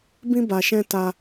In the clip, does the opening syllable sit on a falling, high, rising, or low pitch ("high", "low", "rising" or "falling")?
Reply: high